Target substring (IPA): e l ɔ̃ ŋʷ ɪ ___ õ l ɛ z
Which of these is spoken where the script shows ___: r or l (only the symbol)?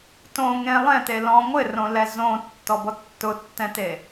r